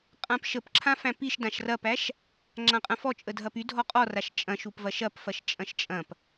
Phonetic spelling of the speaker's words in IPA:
qʼ ã p ʃ ə p ǁʰ ã f æ̃ p i ʃ d ã ʃ r ɐ p æ ʃ | ŋ͡ǁ ã qʼ ɐ̃ f ɔ t͡ʃʼ ə dʱ ɐ p y dʱ ɔ qʼ ɔ r a ʃ t͡ʃʼ ɐ̃ ʃ u p v ɐ ʃ ɐ p f ɐ ʃ t͡ʃʼ ɐ̃ ʃ t͡ʃʼ ɐ̃ p

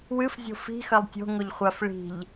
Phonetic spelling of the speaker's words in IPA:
w ɨ f zʲ o̤ f i̤ x ɐ lˠ tʲ o̤ ŋ o ʎ χʷ a f ɭ i̤ ʎ

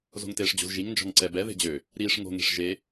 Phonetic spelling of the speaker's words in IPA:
z o̤ ŋ t eː ʂ d͡ʑ o̤ z ʒ i ŋ n d͡ʒ ɔ̤ ŋ ǀ ɛ b ɛ ð e̤ d͡ʑ ø | ɾ iː ʂ ŋ o̤ ŋ e̤ ʂ ʒ e

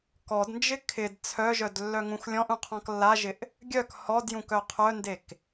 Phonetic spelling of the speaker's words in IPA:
k ɔ d n d͡ʒ ɪ kʰ ɪ d t͡sʰ œ ʒ œ d lː œ ŋ ũ x lʲ ɔ̃ ʔ ũ qʰ ɔ̃ k lː a ʒ ɪ ʔ | ɡʲ œ k h ɔ d j ũ k œ qʰ œ n d e k

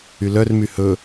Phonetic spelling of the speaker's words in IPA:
y l œ r m y h ɵ

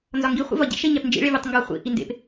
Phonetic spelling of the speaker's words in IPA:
n z ɒ ŋ ɡ i χʷ ḛ v ɒ ɟ ḭ ʃ e ɲ æ p n d͡ʒ ḭ ɭ e vʲ u tˤ ŋ ɡ ɒ χʷ ḭ ʔ i n d ḛ p

